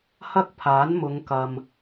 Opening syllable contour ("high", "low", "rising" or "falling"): high